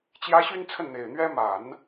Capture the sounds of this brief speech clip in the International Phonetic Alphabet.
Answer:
t͡ɕjä˧˥ ɕy˥n t͡sʰə˥˩nn̪e˨˩ɪ̯n̪ɥɛ˥ ma˨˩˦n

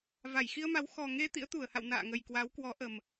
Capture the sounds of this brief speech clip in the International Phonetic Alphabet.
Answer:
va˧˩jxi˧ə̯ma˨˦w xɔ˨˩ŋe˧ t̪ḭ˧˥ə̯t̪u˧˩ə̯ha̰˧˨w na̰ː˧˨ŋə˨˩j kwa˨˦wkwɔ˨˦ ʔə˨˩m

